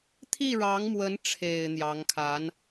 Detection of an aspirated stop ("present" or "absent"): present